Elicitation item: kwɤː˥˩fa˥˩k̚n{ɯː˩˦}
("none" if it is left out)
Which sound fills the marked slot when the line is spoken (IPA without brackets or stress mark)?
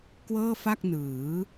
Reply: ɯː˩˦